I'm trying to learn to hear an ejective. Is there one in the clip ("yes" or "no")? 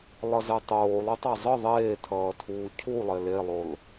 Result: no